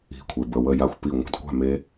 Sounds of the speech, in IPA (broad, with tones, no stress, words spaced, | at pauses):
i̤˥˨kʷʰe˦b ə˥˨wə˥˨ja˥˨xʷ pi˥˨ ŋʷa̤˦dkʷa̤˥˨me˦